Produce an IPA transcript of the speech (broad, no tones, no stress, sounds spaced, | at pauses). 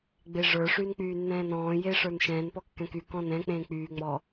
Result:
ɡ͡b e ʐ ə˞ ʂ yː n k͡p yː nː ɛ̃ː n ɔ̃ː j eː ʂ ə˞ n ʃ ɛ̃ː n p ɔ kː ɛ̃ k y k ɔ̃ n ɛ̃ k͡p ẽː k͡p yː ŋ͡m ɔ